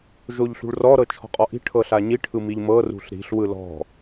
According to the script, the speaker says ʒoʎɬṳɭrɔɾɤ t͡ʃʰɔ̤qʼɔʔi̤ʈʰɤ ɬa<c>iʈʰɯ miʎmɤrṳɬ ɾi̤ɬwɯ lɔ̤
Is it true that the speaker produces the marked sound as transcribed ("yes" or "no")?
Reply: no